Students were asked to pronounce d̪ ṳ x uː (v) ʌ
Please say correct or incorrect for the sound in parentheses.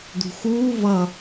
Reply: correct